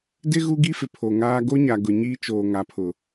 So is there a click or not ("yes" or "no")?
no